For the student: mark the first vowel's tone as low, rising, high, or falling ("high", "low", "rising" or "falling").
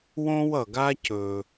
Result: high